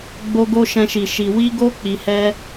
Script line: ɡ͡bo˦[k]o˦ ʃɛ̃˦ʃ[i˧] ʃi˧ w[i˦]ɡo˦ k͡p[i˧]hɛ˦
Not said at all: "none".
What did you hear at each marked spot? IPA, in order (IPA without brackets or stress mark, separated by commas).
ɡ, i˧, i˦, i˧